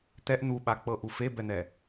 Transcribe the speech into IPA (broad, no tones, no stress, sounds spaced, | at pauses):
t̪ ɛ ʔ n̪ u ɓ a k͡p ɤ ʔ u f e b ɛ n̪ ɛ